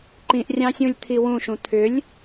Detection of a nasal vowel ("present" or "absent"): present